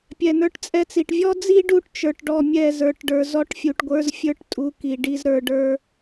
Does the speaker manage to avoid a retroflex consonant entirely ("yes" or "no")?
no